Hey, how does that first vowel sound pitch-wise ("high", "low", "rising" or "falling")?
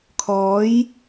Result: rising